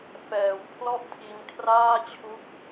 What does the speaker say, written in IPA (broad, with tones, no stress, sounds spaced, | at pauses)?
f ɛː˨˩ w pʰ l ɔ˥˩ ʔ tʰ i˧ n kʰ r aː˥˩ t͡ɕʰ u˦˥ k̚